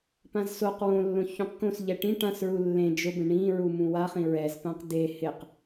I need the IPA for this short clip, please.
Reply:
p ã z s o q w õ lː õ ç ũ q k õ s ʎ ɛ ʈ ĩ ʈ ã s ɹ u lː ẽ d͡ʒ ʊ b ẽ ɳ ĩ ɹ u m ũ w a χ ĩ ɹ ɛ z p ã q d e h ɪ q

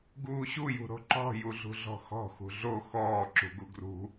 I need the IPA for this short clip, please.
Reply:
ɡ uː ɕ u j ṳ ɾ o̤ ǃ ɔ̤ j u ɮ ṳ ɮ ɔ̤ x ɔ̤ x ṳ ɮ o x ɔː ǁ ṳ ɡ u ɡ r ṳ

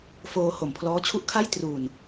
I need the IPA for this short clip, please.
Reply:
f oː˧ h o˨˩ m pʰ l ɔː˦˥ t͡ɕʰ u˥˩ ʔ kʰ a˥˩ j t r uː˨˩ n

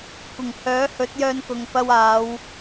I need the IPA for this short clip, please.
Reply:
kʷ ɪ˨˩ ŋ h œː˨˥ h ɵ˨˥ t̚ j œː˧ n k ʊ˨ ŋ p ɐ˧ w aː˨˧ w

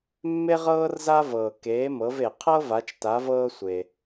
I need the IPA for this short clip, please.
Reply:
mː e˥ ʁ ɤː˥ r z a˥ v ɤː˩ k eː˩˧ m ɤ˩˧ v e˩ qʰ ɤ˥ v a˩˧ t͡ʃ t a˩˧ v ɤː˧ sʷ e˩

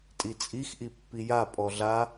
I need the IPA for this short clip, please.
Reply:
tʼ i t͡sʼ i x ʔ i pː i j a pʼ ɔ ɮ a

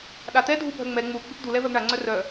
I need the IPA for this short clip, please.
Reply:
ɗ a t̪ ɛ dʱ u bʱ œ ŋ͡m ɛ ŋ͡m u ɡ͡b ʏ p d̪ u l ɛ v œ ɡ ɳ a ŋ͡ǀ œ r œ

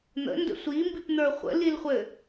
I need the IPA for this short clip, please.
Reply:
n̪ ə̰ n d ə̰ sʷ i m b i p n̪ ə˞ χʷ ə̰ l i l χʷ ɘ

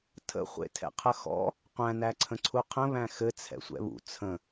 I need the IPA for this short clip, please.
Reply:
tʰ ə̰ χʷ ḛ tʰ ɛ̰ qʰ ə x ɔ̰ | qʷ æ̃ n æ ǀʰ ə̃ ǀʰ u qʰ ə̃ β æ̃ x ɘ t͡sʰ ɛ̰ sʷ ɛ̰ β ṵ t͡sʰ ə̃

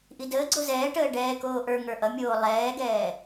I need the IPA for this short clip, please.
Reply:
ʔ i d əː ɡ͡ǀ o z ɛː ʈ əː ɖ ɛː k oː ʔ ə˞ ŋ ə˞ ʔ ʌ mʲ oː lˠ ɛː ɡ ɛː

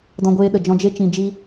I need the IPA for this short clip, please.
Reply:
d ɔ̃˧ ɡʷ eː˧ ɗ ə˨ d͡ʒ ɔ̃˧ d͡ʒ e˦ t͡ʃ ĩ˧ d͡ʒ i˦

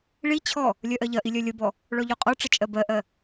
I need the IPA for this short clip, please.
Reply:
ɭ i t͡ɕʰ ɔ | lʲ œ ʔ ɜ ʎ ɐ ʔ i lʲ œ lʲ ə b ɔ | ɭ ɔ ʎ ɔ qʼ ɔ ʈ͡ʂ ə t͡ʃʼ ɜ b ɜ ʔ ɜ

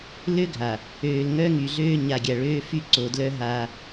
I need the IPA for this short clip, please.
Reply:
l ø˦ ɡʱ a˨ | øː˨ l ŋ œ˦ ŋ y˨ ɮ øː˦ ɲ a˨ ɡʲ a˨ ɭ øː˦ f y˦ ǀ o˨ d l œ˦ ɦ a˦

